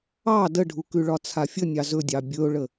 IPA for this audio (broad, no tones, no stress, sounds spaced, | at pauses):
ɑ d ə ɖʱ u k ʉ ɭ ɒ t͡sʰ a fʲ ə nʲ ɑ z ɵ dʲ ɑ bʲ ɵ ʊ̯ ɭ ə